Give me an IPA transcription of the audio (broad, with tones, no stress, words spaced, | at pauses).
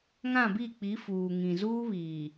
ŋã˦˨bi˦˨k͡pi˨˦ fuː˨ŋĩ˨zuː˦βiː˨